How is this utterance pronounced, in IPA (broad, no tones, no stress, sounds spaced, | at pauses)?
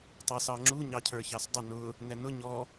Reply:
tˤ æ s ɑ ŋ͡ǁ u ɲ ɑ cʰ ə˞ ç ɑ s dˤ ɪ n ʊ | n̪ ɛ n ʊ ɲ ɔ